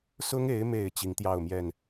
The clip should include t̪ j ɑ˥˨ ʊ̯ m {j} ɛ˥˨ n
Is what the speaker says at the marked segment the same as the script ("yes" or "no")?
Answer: yes